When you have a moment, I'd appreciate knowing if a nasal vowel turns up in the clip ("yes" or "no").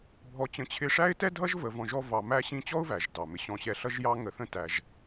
yes